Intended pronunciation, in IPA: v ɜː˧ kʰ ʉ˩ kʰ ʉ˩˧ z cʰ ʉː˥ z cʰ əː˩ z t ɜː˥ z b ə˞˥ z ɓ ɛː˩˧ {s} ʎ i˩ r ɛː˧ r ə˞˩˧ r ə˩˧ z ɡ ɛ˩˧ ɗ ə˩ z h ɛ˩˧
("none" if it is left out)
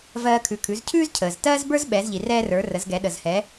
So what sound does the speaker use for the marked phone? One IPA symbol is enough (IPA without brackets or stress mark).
z